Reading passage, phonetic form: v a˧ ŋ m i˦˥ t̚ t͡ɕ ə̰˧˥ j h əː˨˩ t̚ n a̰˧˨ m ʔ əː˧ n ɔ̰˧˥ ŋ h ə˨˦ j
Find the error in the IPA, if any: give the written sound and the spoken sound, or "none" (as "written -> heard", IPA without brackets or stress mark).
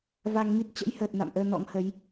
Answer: none